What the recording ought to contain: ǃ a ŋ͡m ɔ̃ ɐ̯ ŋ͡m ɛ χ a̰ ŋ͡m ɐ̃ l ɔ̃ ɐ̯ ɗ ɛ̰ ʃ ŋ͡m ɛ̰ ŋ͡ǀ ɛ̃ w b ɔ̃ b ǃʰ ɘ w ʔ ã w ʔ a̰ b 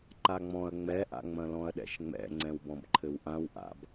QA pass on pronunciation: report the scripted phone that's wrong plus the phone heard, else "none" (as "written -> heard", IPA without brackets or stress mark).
χ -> ʔ